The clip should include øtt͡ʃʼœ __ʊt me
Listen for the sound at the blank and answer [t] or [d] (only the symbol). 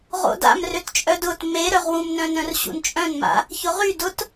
d